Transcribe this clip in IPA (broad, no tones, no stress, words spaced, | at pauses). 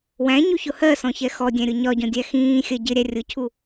wæ̃ɲuçʊ hɜsɔ̃çɛ xɔdʲæ̃ɾʲʊ ɲɒɟɔ̃dʲæ xĩːxʲɜ ɟɪɾʲæ rʲʊcʰu